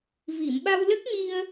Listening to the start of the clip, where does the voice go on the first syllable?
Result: low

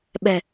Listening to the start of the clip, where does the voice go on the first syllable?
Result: low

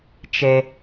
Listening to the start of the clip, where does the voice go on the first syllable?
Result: low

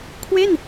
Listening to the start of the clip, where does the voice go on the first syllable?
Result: falling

